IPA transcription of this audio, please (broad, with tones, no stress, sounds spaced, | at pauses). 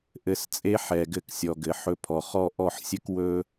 ʔ ɘ˧ s t͡sʼ e˦ ħ ɛ˨ ɡ ɘ˧ k sʲ ɔ˨ ɡ ɘ˨ ħ ɵ˧ pʰ ɔ˨ χ ɔ˧ ʔ ɔ˦˨ ħ sʲ ɘ˦ k w ɵ˧